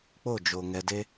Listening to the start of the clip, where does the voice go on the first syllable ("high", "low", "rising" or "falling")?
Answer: falling